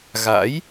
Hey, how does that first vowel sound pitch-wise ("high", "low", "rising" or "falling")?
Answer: rising